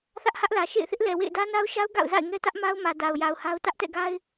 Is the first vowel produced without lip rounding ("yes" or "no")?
yes